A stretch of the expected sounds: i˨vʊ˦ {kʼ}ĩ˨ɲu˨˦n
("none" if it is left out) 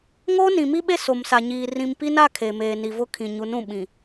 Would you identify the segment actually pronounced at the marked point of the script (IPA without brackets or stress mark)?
kʰ